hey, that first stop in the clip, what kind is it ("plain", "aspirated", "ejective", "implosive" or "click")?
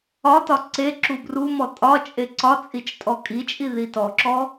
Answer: plain